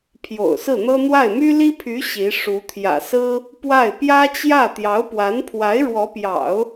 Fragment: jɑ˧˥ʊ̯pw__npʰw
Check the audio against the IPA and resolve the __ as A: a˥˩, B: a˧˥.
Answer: B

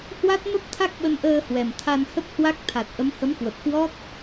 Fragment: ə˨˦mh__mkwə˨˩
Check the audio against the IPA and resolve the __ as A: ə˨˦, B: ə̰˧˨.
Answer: A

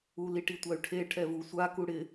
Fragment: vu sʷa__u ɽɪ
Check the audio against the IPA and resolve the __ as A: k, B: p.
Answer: A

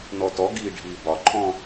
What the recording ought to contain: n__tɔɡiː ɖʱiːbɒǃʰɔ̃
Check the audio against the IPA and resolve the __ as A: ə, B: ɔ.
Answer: B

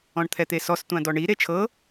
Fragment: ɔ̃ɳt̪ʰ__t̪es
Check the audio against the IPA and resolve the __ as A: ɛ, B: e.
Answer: A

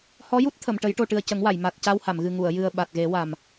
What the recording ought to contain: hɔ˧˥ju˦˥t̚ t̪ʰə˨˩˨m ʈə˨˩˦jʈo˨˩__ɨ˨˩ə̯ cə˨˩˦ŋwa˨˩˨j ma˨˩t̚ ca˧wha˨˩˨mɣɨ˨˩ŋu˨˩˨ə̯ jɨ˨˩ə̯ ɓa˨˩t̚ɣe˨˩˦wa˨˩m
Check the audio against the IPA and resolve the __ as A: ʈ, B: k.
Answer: A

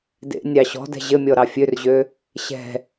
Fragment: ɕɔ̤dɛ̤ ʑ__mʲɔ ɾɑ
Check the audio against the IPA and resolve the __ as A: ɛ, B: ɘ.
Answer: B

